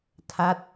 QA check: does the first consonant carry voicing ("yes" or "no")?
no